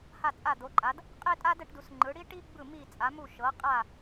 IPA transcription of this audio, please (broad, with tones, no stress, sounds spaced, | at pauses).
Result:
h a˦˨ t͡sʼ a˦˨ d̪ o˨˦ ǃʼ a˨˦ d | qʼ e˥ tʼ a˥ d ɛ˨˦ ʈ d u˨˦ s ŋ͡ǃ ɯ˨˦ ɽ i˥ ʈ i˥ ɡ͡b ɯ˦˨ m i˦˨ t͡sʼ a˨˦ m u˦˨ ʃ ɤ˨˦ qʼ a˦˨